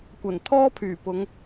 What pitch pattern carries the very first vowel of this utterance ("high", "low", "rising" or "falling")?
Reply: low